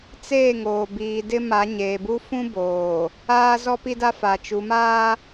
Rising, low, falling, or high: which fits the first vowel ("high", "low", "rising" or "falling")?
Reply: falling